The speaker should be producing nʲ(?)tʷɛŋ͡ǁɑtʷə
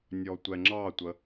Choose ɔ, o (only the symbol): ɔ